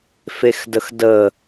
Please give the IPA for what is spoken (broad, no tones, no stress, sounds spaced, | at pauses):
f e x d ə x d ə